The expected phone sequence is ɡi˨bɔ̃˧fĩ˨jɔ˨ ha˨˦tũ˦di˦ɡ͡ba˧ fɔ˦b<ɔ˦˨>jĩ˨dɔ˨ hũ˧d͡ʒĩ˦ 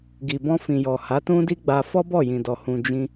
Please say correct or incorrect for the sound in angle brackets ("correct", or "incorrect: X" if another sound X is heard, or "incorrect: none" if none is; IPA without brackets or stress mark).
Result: correct